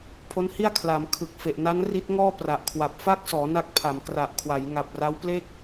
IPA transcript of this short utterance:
pʰ o˦˥ n h i˥˩ a̯ kʰ l a˩˦ m kʰ ɯ˨˩ k̚ f e˨˩ ʔ n a˦˥ n r i˦˥ t̚ ŋ ɔː˥˩ p r a˨˩ ʔ kʰ w a˨˩ p̚ f a˥˩ k̚ s ɔː˩˦ n a˦˥ k̚ pʰ a˩˦ m k r a˨˩ ʔ kʰ w a˩˦ j ŋ a˨˩ p̚ r a˦˥ w p l e˥˩ k̚

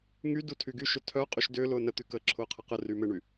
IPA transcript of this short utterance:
ŋ y d u tʰ y ɡ y ʃ ʏ tʰ œ qʼ y ʃ d ʏː l ʊː n ə t̪ y k əː ǁʰ ʊː qʰ ə q ə r y m ɪ ɳ y

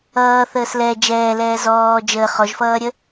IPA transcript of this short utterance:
ʌː θ əː s l ɛ d͡ʒ ɛː l ɛː z ɔː d͡ʒ əː χ ɔ ʒ f ʌː ɾʲ ə

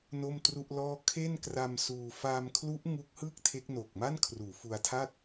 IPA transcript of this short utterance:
n o˥˩ m t r u˥˩ ʔ l ɔː˥˩ kʰ e˥˩ n k r a˧ m s uː˧ f aː˧ m kʰ l u˦˥ ʔ ŋ u˦˥ k̚ h ɯː˥˩ k̚ tʰ e˦˥ k̚ n o˨˩ k̚ m a˥˩ n kʰ r uː˩˦ f u˧ a̯ tʰ a˥˩ t̚

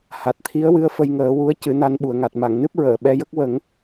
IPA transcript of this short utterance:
h a˨˩ t̚ t̪ʰ i˧˥ ə̯ w ɨ˧˥ ə̯ f ə˧ j ŋ əː˨˩˦ w u˧˥ ə̯ c ɨ˨˩˦ n a˧ n ɓ u˨˩ ə̯ ŋ a˨˩ t̚ m a˨˩˨ ŋ n ɨ˦˥ p̚ ɹ əː˨˩˨ ɓ ɛ˧ j ə˦˥ k̚ w ə˨˩˦ ŋ

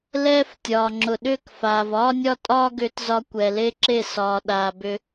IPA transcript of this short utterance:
l ɛː˦ f tʲ ɒː˨ ŋ͡ǁ ʊ˨ ɗ ʏː˦˨ k f aː˨ v ɒː˦ nʲ ɒ˦ tʼ ɒː˦ ɡ ʏː˧ t z ɒ˧ kʷ ɛ˨ l e˦ ǁ e˦˨ s ɒː˨ ɗ aː˨ b ʏ˧

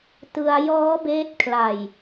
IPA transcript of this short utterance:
t ɯ˧ a̯ j ɔː˦˥ b eː˦˥ t̚ kʰ l a˨˩ j

